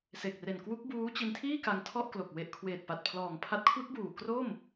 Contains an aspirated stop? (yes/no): yes